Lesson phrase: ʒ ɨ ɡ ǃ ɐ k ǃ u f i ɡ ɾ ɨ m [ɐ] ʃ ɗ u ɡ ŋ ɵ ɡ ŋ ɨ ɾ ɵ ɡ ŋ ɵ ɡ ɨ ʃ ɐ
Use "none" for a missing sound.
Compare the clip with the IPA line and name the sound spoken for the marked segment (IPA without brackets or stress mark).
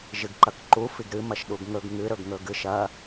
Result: ɐ